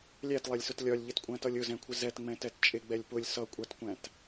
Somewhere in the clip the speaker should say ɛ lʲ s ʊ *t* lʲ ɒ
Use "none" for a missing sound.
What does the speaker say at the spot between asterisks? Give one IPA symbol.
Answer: t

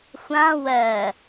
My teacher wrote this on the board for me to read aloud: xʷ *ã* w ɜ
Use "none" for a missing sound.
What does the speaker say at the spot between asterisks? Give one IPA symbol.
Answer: ã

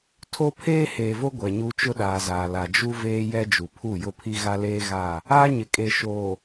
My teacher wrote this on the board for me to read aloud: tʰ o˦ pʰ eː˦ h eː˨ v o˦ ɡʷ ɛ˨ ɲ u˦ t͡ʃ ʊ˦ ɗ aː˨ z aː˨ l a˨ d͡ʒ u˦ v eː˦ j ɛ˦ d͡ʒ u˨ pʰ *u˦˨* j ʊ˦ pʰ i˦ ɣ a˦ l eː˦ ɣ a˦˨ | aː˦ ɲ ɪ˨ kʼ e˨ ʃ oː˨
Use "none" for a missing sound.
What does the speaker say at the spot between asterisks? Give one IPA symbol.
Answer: u˦˨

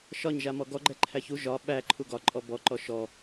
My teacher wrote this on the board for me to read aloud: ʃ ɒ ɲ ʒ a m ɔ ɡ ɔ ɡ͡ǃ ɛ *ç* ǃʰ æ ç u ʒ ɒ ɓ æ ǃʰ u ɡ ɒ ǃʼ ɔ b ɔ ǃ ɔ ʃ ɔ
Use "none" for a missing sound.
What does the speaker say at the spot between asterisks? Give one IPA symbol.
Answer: none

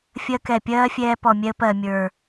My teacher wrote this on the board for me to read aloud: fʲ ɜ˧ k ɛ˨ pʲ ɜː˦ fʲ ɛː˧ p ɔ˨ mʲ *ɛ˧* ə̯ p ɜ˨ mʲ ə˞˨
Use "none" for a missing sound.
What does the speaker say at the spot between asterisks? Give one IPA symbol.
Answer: ɛ˧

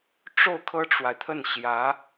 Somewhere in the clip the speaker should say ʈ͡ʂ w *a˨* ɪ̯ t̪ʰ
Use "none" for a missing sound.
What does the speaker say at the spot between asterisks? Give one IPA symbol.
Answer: a˨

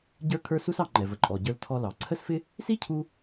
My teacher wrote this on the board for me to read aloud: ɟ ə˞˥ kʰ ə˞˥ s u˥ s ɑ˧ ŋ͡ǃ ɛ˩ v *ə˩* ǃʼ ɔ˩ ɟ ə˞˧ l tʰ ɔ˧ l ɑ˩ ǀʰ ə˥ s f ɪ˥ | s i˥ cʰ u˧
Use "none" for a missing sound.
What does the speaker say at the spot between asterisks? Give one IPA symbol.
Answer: ə˩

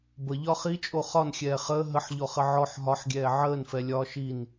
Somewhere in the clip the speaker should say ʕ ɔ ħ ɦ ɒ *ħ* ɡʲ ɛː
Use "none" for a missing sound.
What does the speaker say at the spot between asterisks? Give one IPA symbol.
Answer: ħ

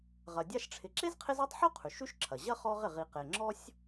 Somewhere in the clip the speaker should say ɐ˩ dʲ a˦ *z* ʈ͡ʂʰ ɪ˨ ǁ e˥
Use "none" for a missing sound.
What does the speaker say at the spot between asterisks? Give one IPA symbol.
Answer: ʃ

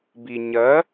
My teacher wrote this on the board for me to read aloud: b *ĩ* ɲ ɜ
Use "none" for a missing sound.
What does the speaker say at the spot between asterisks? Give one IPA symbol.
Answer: i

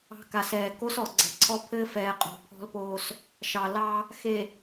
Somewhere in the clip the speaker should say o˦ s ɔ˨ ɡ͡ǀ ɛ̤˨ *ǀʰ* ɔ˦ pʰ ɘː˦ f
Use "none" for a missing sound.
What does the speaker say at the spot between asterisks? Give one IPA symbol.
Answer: ǀʰ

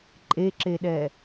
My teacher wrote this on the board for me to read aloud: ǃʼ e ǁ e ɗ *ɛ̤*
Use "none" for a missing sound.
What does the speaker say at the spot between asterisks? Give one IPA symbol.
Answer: ɛ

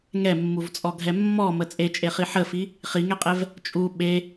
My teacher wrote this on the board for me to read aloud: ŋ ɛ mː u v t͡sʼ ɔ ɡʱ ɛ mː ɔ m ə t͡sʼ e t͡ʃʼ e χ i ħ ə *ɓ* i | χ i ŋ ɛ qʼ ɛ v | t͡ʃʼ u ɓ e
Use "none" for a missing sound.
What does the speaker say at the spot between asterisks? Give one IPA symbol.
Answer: f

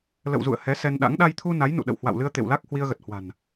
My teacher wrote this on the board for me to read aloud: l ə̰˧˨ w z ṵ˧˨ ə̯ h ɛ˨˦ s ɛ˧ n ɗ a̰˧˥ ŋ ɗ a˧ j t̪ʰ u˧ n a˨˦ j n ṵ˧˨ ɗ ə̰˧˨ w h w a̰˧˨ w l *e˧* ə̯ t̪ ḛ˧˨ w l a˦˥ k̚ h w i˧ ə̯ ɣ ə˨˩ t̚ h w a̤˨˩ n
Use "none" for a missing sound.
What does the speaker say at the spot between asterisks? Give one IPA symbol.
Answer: ɨ˧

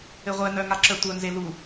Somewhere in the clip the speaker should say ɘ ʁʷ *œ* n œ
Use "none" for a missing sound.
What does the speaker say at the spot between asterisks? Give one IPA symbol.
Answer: ɛ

